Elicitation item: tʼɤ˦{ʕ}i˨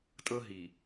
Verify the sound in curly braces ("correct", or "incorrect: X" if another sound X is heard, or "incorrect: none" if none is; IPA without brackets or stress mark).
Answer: incorrect: ɦ